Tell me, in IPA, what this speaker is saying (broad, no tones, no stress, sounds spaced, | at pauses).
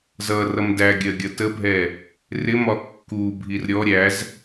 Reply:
z ʌ r ʌ m d æ ɡʲ ɜ ɡʲ ʌ t ə bʱ ɛ | r ɪ m ɒ kː u bʱ i r ɾʲ ɔ ɾʲ æ z